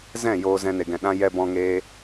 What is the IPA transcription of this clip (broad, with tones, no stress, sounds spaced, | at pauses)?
z ɛ̃˦˨ j oː˧ z ɛ̃˧ n e˧ ɡ ɛ̃˧ ɗ ã˦ j ɛ˧ b ɔ̃˧ ŋ eː˦